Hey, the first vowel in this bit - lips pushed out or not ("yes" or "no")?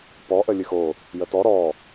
yes